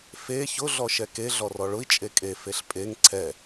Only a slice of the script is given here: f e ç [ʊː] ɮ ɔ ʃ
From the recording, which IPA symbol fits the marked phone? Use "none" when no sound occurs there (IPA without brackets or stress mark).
ʊ